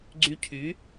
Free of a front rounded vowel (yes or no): no